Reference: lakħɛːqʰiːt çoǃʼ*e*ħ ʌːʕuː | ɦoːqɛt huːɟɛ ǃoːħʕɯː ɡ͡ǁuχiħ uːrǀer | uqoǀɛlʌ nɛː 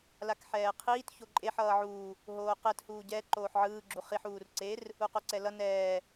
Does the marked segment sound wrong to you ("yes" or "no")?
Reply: no